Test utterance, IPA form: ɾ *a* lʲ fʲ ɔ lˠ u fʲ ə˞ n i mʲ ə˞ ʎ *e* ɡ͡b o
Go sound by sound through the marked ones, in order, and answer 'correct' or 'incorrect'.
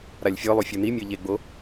correct, correct

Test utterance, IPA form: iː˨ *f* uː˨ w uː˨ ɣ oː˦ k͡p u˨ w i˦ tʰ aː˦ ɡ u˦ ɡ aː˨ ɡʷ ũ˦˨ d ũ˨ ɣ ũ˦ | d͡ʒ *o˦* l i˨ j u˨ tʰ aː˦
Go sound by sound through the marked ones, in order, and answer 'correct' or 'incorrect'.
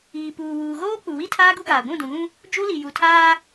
incorrect, incorrect

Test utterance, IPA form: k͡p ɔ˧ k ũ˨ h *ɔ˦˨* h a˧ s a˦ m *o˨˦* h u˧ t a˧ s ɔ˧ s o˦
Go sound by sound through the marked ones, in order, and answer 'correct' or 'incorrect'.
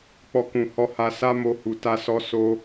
incorrect, incorrect

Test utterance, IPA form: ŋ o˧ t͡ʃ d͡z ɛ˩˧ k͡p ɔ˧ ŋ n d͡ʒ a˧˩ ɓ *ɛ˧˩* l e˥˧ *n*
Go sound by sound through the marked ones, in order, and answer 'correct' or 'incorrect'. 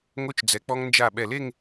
correct, incorrect

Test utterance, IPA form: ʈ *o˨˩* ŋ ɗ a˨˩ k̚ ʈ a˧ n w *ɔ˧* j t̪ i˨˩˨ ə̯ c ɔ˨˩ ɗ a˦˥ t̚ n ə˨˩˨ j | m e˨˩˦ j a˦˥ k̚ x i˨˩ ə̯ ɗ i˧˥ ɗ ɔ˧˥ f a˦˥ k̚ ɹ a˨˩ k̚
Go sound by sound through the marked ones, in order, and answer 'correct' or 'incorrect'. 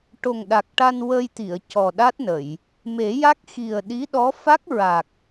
correct, incorrect

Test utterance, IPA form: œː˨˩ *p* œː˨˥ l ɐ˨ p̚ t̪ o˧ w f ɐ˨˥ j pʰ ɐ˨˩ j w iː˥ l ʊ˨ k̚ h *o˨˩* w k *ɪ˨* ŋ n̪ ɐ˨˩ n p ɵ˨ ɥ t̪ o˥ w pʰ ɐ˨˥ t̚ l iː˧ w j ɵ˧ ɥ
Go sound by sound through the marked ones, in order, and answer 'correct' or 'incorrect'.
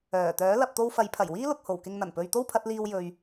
incorrect, correct, correct

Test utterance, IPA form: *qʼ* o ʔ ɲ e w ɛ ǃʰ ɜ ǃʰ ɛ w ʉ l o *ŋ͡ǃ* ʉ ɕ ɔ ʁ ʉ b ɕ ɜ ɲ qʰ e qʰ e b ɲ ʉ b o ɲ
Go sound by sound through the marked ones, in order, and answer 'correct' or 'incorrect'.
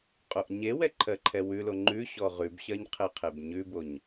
correct, correct

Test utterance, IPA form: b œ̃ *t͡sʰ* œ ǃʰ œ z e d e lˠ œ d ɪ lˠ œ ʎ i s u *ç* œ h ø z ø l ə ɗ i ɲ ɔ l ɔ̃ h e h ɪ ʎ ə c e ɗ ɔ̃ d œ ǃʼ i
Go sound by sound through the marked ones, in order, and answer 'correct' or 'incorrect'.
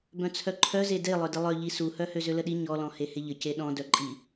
correct, incorrect

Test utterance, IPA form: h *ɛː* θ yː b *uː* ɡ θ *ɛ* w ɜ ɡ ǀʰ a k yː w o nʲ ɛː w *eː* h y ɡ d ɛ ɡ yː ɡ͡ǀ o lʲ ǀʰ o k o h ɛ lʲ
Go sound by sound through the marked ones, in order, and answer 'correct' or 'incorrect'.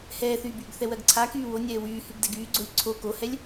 correct, incorrect, correct, incorrect

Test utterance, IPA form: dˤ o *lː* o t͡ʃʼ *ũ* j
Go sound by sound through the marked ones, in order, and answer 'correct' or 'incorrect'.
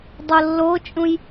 correct, correct

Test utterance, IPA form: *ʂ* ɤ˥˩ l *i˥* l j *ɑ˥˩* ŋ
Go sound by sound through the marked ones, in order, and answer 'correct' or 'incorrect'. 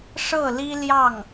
correct, correct, correct

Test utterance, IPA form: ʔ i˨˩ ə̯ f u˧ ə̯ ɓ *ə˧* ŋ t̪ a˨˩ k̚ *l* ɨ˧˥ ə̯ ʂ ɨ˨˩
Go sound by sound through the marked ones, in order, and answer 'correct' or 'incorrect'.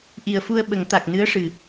incorrect, incorrect

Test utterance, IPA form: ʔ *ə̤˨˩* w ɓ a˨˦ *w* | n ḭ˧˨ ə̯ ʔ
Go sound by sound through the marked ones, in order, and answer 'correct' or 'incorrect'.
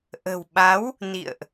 correct, correct

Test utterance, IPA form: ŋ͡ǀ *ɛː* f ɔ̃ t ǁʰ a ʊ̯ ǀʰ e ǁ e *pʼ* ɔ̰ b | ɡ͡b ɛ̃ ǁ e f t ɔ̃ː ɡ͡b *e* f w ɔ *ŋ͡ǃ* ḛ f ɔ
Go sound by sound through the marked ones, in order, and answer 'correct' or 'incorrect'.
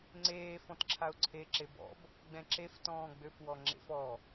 incorrect, incorrect, incorrect, incorrect

